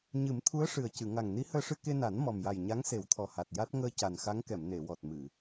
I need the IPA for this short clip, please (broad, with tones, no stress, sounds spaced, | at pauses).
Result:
ɲ ɨ˨˩˦ m t̪ʰ u˧˥ ə̯ ʂ ɨ˨˩ ə̯ c ɨ˨˩˨ ŋ a˨˩ ŋ n i˧˥ h əː˧ ʂ ɨ˧ k e˧ n a˨˩˦ n m ɔ˨˩ m j a˨˩ j ɲ a˧˥ ŋ s e˨˩˦ w t̪ʰ ɔ˨˩ h a˨˩ t̚ j a˦˥ t̚ ŋ əː˧ c a˨˩ n x a˧˥ ŋ k ɛ˨˩˨ m n e˨˩˨ w ɔ˨˩ t̚ m ɨ˨˩˨